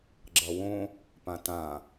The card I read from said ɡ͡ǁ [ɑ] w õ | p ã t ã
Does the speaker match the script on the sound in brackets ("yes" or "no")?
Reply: no